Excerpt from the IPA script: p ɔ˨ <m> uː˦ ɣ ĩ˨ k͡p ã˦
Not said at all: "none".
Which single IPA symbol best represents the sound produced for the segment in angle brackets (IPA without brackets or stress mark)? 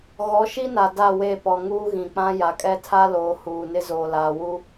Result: ŋ